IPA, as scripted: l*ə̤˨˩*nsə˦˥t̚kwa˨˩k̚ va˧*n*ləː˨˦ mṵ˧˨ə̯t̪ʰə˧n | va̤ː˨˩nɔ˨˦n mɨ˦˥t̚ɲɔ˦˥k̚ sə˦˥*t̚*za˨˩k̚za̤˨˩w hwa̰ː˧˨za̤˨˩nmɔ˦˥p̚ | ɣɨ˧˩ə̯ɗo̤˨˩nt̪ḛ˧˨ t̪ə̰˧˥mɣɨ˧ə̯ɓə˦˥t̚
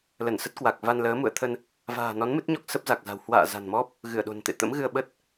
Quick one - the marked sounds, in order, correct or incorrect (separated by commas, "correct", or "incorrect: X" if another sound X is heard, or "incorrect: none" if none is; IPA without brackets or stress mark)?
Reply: incorrect: ə˧˩, correct, incorrect: p̚